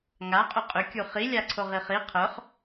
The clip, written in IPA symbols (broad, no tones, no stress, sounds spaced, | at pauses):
ŋ a qʼ ʏ qʼ ʏ kʲ u χ i lʲ a ǀʰ o ʁ i χ i qʰ œ χ